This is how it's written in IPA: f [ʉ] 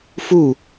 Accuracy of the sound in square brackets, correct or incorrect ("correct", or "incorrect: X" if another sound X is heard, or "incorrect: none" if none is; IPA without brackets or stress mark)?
incorrect: u